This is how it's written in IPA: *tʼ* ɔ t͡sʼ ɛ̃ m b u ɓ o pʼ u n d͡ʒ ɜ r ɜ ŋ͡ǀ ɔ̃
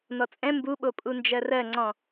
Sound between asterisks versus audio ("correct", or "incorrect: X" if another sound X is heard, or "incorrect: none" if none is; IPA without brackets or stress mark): incorrect: n